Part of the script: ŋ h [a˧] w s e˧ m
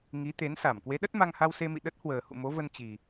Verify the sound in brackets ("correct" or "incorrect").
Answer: correct